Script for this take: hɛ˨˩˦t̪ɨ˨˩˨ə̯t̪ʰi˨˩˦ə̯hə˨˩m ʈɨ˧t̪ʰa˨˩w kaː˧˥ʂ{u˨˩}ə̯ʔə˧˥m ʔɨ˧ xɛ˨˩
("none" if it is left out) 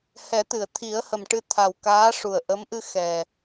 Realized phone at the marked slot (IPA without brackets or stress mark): u˨˩